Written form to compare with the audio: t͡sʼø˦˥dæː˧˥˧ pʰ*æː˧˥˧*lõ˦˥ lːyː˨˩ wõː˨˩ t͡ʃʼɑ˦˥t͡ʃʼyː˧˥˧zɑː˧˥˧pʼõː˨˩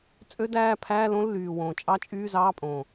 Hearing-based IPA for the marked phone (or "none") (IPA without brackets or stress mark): æː˧˥˧